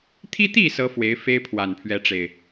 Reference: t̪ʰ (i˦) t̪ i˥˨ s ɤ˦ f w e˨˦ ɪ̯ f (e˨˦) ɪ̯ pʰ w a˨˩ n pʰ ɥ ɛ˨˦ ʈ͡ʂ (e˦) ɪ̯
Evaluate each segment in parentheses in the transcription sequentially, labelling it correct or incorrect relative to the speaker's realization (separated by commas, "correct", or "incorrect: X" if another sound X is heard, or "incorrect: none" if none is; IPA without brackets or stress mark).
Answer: correct, incorrect: e˦, incorrect: e˨˩